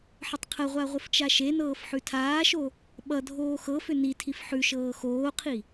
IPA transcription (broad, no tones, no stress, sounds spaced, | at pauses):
ħ ə tˤ qʰ ə ʁʷ a ʁʷ ə f t͡ʃ a ʃ e n ɤː f ħ ʉ tʰ aː ʃ o | ɓ ʌ dʱ oː x ɤ f ʏ n i tʰ i f ħ ʉ ʃ ɤː x oː qʰ i